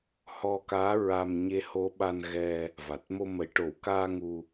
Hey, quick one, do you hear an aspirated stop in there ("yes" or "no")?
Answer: no